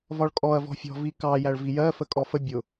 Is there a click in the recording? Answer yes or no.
no